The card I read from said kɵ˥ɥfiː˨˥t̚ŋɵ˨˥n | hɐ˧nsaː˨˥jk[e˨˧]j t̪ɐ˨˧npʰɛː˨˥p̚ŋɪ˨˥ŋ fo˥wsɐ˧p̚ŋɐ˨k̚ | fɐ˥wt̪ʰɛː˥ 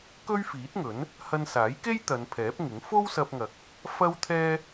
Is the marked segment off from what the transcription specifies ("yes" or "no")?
yes